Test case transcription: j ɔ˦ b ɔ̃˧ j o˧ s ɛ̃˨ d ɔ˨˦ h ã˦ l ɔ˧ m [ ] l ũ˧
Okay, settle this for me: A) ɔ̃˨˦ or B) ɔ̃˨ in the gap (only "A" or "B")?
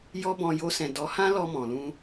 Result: B